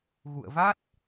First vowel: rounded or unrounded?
rounded